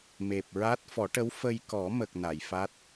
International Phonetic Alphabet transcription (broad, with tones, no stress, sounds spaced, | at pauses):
m e˨˩ p̚ ɹ a˦˥ t̚ f ɔ˨˩˦ ʈ ə˧˥ w f ə˧ j k ɔ˨˩˦ m ə˨˩ k̚ n a˨˩˨ j f a˦˥ t̚